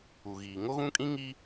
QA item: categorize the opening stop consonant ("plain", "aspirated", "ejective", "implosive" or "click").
ejective